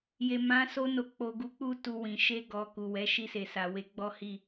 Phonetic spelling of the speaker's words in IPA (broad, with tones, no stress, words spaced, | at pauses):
je˨mã˨˦ so˧no˨ k͡po˨ɡu˨˦k͡pu˧ tu˨ wĩ˨ ʃe˧ɡɔ˨ ku˨wɛ˨˦ ʃi˧se˨sa˨ we˨˦ɡ͡bɔ˦ hi˦˨